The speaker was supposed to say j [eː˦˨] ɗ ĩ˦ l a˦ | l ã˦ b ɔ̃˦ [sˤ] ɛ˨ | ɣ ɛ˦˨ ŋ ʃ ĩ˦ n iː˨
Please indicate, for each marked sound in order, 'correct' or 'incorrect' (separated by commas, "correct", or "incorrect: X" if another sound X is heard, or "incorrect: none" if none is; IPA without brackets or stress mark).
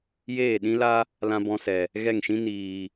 correct, incorrect: s